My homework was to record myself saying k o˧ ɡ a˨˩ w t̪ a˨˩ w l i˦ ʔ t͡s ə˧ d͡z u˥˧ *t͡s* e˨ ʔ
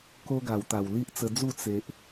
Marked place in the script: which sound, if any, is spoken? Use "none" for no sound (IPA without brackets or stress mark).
t͡s